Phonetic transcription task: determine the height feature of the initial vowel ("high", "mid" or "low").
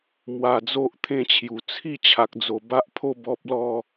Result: low